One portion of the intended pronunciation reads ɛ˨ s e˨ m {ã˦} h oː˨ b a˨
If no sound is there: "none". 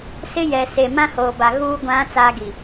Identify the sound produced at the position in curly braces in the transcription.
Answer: ã˦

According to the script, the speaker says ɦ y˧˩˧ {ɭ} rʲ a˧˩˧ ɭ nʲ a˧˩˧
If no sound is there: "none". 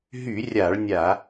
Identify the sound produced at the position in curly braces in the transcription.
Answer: none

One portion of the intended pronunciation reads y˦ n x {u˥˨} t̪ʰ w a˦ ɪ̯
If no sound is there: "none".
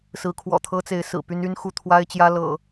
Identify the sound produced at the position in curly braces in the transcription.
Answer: u˥˨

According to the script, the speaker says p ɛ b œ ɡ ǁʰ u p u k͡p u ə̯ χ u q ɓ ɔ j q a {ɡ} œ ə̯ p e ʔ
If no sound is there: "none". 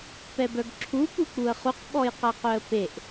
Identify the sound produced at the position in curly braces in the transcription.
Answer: q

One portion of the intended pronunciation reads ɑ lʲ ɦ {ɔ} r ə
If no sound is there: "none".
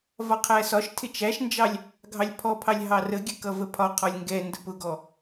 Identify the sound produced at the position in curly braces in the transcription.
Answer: ɑ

